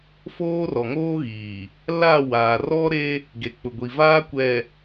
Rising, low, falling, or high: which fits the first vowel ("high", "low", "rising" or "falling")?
high